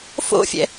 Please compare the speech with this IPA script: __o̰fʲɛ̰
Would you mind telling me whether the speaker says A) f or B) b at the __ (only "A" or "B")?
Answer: A